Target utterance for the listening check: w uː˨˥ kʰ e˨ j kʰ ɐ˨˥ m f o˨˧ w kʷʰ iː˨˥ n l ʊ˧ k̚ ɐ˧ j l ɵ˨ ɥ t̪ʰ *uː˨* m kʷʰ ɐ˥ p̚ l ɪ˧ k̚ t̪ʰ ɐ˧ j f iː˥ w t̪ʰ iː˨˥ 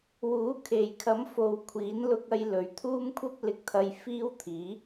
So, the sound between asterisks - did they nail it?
no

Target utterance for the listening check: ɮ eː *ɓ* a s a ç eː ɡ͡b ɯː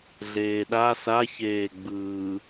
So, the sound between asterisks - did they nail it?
no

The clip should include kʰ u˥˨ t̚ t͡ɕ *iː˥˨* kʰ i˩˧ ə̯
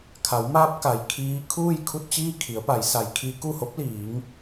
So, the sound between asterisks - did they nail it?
yes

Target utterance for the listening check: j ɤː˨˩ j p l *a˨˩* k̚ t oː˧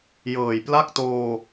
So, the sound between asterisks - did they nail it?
no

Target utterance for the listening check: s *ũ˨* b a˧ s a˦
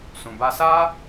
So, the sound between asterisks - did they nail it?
yes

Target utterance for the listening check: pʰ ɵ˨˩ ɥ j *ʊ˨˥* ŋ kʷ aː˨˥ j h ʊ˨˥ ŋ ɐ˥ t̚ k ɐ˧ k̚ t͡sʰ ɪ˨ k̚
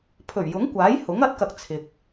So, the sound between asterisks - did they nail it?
yes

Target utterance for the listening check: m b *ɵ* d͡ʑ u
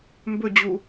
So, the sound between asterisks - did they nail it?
yes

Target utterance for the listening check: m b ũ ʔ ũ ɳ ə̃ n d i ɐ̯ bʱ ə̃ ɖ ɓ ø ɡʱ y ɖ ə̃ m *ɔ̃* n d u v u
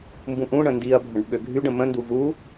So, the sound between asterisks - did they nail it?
no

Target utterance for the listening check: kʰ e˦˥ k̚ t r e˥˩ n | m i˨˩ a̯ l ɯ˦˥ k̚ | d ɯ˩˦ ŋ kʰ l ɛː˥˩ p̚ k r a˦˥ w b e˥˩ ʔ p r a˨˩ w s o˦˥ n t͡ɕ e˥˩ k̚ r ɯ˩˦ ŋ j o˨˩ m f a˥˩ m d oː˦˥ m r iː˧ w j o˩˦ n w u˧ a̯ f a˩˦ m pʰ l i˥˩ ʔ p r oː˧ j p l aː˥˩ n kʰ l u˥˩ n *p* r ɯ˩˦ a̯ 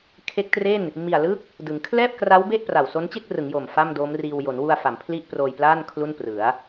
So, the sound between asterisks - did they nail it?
yes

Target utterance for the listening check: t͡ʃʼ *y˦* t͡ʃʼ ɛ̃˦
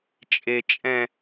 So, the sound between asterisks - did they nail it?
no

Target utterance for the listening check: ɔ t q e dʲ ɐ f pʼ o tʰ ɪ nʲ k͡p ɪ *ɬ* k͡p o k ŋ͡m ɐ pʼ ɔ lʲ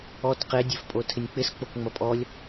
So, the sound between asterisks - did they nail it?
no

